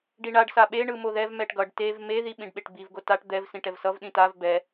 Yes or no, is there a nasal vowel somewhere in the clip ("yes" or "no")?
yes